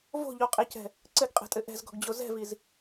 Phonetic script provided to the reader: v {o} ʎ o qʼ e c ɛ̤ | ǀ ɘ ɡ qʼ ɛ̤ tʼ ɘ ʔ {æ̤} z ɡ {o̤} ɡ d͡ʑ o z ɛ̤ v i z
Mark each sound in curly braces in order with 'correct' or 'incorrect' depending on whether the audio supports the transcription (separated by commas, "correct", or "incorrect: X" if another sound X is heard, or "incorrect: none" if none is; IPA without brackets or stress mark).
incorrect: o̤, incorrect: ɛ̤, incorrect: ɔ̤